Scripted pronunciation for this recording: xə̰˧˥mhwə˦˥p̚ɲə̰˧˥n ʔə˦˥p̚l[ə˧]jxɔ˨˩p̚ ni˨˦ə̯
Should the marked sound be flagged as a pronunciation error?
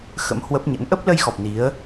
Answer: no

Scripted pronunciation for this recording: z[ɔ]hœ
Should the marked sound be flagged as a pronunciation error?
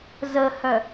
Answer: yes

